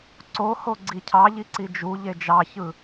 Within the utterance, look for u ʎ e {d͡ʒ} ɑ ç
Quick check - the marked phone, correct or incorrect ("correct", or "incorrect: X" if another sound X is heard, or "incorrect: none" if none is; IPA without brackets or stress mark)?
correct